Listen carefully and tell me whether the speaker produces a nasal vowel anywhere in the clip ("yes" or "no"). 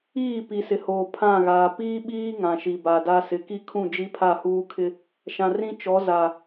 yes